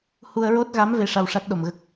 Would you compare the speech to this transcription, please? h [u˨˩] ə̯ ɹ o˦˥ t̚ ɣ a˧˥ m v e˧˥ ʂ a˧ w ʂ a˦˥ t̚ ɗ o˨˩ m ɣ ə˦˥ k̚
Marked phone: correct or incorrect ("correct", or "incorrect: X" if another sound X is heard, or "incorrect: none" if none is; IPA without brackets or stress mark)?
incorrect: u˧